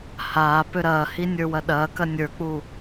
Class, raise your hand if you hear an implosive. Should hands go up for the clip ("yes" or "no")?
yes